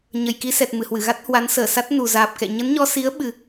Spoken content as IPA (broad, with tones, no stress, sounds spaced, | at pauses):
ɲ ə˨˩ j k i˧ s ɛ˨˩ t̚ m ɨ˧˩ h w ɨ˧˩ ɣ a˦˥ t̚ h w a˨˦ n s əː˧˩ s a˦˥ t̚ n u˨˩ z aː˨˩ p̚ k ɛ̰˧˨ ɲ ə˨˦ n ɲ ɔ˧ s i˨˦ ə̯ ɓ ɨ˨˩